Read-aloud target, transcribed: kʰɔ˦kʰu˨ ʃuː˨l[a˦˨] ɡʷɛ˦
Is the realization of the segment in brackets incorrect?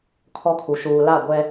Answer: no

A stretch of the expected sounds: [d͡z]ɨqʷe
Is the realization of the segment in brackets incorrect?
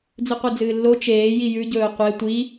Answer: no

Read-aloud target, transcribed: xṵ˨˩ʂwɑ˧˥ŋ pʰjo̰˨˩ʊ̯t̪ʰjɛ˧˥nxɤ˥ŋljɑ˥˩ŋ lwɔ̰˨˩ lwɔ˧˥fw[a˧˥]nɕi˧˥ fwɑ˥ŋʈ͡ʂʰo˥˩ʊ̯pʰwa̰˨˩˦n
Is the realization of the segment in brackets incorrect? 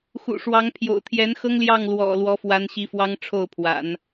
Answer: no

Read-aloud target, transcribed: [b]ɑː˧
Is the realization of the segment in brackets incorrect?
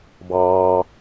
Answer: no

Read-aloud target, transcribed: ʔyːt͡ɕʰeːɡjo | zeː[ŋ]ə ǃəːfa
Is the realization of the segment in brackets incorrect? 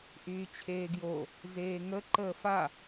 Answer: no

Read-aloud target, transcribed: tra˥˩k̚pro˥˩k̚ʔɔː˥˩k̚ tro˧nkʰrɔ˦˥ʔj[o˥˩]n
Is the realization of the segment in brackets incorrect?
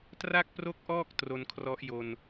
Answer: yes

